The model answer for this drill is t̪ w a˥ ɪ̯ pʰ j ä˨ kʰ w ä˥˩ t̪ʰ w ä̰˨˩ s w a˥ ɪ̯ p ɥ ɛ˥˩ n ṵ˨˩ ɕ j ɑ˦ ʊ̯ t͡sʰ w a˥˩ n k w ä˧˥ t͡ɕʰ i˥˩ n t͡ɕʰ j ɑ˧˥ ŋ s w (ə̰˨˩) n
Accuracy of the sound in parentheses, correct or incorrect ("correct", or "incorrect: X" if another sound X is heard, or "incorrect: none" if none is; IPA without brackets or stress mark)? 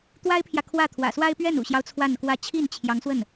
incorrect: ə˥˩